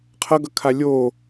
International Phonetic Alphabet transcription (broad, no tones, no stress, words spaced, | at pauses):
qʰʌɡʌkʰa lʲo